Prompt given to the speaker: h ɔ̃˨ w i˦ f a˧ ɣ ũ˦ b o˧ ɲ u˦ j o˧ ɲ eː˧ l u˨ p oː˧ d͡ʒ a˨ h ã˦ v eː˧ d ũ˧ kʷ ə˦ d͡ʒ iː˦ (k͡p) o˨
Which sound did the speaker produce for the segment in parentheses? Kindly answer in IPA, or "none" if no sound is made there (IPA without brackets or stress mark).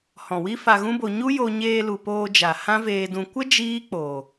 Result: k͡p